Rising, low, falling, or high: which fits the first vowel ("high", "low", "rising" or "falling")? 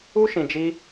high